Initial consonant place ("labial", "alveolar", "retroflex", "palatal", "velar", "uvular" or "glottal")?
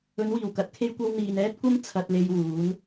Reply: alveolar